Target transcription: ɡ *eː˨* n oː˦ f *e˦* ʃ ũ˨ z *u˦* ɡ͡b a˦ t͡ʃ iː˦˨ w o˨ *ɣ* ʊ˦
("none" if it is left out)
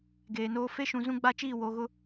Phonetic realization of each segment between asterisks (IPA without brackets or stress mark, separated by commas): eː˨, e˦, ũ˦, ɣ